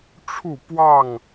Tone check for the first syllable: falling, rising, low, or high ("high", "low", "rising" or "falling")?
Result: falling